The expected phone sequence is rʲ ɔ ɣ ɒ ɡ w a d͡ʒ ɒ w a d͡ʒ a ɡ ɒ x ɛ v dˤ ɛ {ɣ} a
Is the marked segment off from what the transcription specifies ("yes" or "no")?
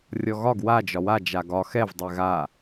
no